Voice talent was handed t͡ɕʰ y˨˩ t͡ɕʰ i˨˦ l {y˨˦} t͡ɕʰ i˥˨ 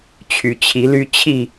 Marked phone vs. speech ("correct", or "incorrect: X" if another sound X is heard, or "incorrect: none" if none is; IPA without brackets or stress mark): incorrect: y˦